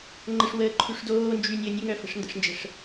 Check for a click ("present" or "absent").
present